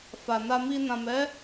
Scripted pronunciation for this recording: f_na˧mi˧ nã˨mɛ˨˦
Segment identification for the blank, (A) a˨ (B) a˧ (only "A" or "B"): A